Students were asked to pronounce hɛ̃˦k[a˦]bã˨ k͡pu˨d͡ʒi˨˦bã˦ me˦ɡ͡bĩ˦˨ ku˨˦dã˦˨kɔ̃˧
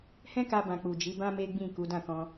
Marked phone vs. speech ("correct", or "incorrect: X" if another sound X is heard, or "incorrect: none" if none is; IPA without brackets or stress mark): incorrect: a˧